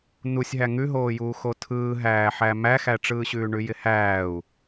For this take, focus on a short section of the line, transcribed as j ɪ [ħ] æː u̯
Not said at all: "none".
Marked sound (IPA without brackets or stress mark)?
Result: h